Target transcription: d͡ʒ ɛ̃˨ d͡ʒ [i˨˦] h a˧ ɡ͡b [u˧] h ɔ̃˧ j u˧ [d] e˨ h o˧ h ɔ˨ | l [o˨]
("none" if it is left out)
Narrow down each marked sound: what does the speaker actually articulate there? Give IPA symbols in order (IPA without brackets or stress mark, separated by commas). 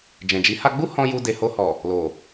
i˨˦, u˦, d, o˨